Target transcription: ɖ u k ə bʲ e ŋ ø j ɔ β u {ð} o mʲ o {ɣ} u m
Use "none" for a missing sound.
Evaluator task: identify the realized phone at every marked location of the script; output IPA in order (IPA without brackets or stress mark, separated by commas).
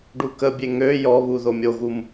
ð, ɣ